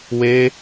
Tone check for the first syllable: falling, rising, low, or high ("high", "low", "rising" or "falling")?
high